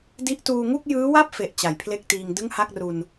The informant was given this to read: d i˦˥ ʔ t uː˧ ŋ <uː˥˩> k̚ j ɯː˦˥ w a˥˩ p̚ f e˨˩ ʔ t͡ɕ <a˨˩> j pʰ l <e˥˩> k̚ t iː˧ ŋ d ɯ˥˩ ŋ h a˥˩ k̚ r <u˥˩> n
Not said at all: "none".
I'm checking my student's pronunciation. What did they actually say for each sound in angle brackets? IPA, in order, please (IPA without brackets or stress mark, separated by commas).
u˥˩, a˨˩, e˥˩, u˧